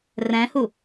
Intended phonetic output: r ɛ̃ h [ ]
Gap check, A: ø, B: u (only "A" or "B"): B